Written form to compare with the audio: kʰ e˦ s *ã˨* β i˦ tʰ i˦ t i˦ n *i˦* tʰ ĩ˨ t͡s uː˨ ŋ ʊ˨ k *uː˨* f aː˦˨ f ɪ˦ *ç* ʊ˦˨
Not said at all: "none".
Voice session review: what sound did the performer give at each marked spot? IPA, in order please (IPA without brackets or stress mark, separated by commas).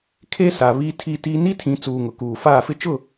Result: a˨, i˦, uː˨, t͡ʃ